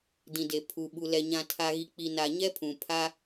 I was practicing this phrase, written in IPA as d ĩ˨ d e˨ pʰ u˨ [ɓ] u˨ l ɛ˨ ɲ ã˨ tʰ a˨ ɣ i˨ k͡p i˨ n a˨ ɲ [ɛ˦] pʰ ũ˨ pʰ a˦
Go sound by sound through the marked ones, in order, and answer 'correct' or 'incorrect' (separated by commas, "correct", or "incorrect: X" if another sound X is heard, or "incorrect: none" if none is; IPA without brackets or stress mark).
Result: correct, correct